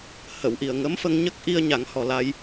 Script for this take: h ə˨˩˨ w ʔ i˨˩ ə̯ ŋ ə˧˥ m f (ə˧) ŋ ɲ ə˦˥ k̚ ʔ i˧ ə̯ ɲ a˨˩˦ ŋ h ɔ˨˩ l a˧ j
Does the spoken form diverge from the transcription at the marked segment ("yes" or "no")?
no